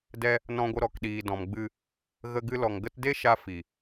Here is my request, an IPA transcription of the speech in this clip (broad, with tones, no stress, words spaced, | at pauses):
dɛ˧ | nɔ̃˧ɡʷə˧ ɾɔ˨kɗiː˨dɔ̃˨mɡ͡bɨ˧ | ɣə˧ɡɨ˧lɔ˨ŋ ɡə˧tde˦ ʃa˧ fi˨